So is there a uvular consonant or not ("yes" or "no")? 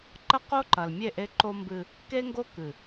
yes